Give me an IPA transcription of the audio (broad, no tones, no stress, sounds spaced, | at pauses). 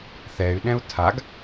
θ ɛ y̯ ɗ ɛ̃ u̯ tʰ a ɡ